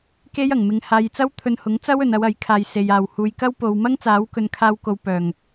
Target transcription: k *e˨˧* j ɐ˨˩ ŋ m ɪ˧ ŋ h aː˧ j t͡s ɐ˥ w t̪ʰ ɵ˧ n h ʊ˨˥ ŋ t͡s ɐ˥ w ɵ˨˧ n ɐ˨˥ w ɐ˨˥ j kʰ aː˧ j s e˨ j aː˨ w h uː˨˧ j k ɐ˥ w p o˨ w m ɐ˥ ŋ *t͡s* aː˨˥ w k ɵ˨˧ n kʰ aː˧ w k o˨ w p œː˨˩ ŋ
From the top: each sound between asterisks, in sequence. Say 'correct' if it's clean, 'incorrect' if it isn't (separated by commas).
incorrect, correct